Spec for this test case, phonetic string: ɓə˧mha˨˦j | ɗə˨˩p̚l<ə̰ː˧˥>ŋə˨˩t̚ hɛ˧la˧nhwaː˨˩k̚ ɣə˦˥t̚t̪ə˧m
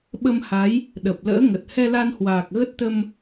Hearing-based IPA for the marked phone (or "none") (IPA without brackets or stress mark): ə̰ː˧˥